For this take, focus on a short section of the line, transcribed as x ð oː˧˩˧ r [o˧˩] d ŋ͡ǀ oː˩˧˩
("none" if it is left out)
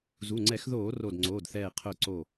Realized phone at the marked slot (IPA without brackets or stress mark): o˧˩